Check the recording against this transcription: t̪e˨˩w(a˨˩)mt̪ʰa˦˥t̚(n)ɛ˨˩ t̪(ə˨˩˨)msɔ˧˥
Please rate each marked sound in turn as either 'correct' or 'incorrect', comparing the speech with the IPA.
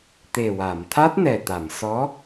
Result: incorrect, correct, incorrect

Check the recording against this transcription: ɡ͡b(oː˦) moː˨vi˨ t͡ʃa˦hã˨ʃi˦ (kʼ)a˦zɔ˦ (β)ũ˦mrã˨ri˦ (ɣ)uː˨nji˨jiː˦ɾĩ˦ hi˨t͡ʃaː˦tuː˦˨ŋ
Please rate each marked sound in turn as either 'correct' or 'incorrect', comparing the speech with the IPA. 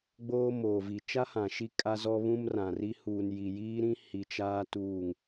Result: correct, correct, correct, incorrect

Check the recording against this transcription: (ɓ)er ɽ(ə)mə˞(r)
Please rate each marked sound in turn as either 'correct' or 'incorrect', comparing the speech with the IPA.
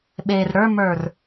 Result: correct, incorrect, correct

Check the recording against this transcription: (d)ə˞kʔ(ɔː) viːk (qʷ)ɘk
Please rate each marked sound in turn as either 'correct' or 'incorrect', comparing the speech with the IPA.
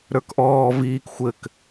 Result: incorrect, correct, incorrect

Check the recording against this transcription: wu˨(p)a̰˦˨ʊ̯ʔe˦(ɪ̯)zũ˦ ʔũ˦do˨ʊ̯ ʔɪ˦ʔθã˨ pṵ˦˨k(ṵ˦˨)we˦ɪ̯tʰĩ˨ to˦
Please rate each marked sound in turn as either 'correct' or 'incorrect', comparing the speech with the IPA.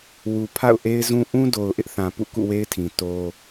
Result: incorrect, correct, correct

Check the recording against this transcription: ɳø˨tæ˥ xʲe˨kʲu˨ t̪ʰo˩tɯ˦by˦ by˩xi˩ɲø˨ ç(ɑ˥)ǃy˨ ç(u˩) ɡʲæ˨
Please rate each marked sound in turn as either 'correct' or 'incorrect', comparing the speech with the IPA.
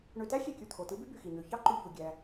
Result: correct, correct

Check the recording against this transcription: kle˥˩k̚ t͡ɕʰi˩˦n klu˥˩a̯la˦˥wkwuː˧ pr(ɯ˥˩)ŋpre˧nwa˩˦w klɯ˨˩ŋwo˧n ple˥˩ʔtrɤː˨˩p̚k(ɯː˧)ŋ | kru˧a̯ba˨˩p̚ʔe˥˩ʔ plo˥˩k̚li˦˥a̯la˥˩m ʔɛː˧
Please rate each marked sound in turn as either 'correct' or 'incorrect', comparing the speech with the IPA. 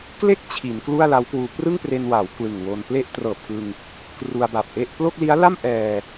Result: correct, incorrect

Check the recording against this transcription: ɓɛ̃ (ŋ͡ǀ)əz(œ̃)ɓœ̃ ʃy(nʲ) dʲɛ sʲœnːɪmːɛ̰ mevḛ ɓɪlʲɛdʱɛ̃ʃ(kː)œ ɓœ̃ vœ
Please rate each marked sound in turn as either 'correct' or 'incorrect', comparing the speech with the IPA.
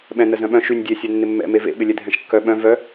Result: incorrect, correct, correct, correct

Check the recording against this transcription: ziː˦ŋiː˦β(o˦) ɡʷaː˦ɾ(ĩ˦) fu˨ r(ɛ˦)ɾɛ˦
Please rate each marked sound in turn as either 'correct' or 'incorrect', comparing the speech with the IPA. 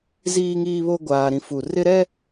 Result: correct, correct, incorrect

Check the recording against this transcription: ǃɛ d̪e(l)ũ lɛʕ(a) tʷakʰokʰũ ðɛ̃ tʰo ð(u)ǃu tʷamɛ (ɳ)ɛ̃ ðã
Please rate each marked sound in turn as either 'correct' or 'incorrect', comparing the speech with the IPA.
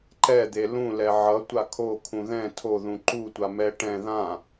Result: correct, incorrect, incorrect, incorrect

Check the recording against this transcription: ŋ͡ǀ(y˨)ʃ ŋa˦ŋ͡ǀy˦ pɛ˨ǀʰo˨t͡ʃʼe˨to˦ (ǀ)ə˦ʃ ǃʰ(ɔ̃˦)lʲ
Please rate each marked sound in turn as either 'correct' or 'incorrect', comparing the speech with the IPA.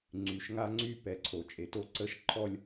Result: correct, correct, incorrect

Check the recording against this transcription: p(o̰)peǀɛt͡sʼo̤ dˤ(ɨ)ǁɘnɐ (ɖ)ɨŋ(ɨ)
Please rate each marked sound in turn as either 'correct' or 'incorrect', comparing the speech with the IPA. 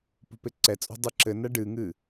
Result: incorrect, correct, correct, correct

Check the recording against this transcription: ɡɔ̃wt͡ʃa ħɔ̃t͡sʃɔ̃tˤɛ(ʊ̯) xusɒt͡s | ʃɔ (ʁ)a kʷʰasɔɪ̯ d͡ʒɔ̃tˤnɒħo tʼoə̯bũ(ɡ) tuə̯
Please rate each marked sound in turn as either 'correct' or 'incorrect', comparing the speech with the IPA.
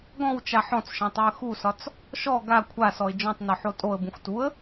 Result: incorrect, incorrect, incorrect

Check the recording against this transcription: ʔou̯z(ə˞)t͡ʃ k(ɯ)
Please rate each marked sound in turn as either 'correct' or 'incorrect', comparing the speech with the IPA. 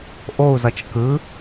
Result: incorrect, correct

